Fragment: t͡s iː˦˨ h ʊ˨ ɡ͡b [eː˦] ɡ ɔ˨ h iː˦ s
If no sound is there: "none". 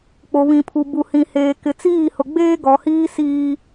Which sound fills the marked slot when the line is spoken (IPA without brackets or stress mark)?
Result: eː˦